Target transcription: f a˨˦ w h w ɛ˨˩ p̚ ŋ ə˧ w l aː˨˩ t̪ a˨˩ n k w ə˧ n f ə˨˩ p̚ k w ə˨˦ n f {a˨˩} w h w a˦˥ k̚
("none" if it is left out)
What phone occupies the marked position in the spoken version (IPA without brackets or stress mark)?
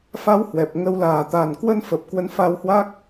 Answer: a˧